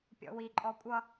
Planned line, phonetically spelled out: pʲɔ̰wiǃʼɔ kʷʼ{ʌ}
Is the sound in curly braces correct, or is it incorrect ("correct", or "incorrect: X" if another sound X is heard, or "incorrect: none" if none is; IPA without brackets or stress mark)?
correct